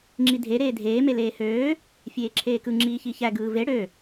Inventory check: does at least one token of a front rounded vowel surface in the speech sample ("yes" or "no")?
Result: yes